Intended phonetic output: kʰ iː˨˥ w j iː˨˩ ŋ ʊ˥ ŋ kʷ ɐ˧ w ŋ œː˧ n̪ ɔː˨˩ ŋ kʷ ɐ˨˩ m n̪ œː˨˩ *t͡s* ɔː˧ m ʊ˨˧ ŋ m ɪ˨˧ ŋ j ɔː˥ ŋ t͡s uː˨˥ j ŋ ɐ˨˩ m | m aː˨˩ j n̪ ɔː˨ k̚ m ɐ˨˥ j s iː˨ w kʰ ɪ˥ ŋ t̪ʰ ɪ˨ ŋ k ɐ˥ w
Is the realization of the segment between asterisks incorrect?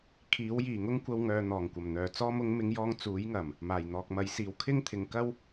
no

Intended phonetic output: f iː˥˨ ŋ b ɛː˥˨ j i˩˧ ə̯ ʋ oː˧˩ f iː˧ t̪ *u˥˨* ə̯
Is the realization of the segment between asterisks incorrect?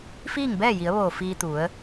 yes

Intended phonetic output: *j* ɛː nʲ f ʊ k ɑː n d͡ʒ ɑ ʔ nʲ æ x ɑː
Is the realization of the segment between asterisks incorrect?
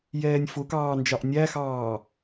no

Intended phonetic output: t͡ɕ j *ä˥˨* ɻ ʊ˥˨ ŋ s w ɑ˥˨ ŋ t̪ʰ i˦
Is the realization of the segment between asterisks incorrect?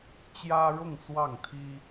yes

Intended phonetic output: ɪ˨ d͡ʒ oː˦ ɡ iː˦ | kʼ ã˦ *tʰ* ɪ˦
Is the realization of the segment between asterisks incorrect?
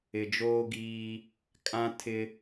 no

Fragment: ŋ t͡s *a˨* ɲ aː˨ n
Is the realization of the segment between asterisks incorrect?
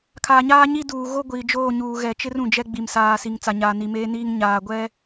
no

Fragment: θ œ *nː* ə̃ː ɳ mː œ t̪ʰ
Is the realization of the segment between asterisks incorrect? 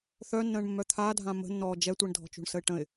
no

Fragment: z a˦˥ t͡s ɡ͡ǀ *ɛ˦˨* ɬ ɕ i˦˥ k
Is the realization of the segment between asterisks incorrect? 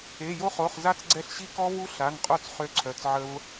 no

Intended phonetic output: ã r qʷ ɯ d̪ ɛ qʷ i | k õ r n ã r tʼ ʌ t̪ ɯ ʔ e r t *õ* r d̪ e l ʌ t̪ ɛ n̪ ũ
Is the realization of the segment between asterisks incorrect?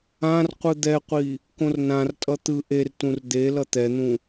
yes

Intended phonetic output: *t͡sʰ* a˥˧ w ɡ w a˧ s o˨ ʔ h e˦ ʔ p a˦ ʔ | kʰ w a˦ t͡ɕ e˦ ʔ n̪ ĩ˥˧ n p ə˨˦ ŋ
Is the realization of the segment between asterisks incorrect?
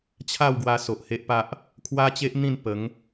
yes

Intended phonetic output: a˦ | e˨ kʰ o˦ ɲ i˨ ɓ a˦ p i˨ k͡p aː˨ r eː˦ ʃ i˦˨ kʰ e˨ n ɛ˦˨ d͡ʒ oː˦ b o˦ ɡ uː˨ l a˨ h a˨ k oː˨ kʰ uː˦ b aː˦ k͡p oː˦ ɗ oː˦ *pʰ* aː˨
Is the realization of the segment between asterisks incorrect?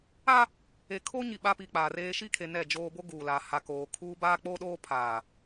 no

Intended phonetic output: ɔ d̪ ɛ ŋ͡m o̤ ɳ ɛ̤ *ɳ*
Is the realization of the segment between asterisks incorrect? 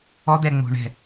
yes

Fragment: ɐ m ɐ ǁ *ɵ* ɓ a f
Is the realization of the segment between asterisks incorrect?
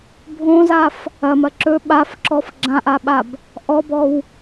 no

